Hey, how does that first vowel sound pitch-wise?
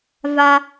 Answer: high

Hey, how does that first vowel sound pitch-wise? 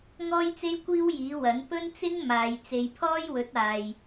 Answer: high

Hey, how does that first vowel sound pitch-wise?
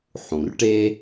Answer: low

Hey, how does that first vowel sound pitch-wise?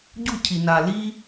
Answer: falling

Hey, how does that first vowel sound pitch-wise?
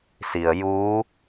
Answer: low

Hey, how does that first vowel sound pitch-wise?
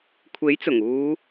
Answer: rising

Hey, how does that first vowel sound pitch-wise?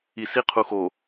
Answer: low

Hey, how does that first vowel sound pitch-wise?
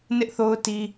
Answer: high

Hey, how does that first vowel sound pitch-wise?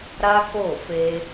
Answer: high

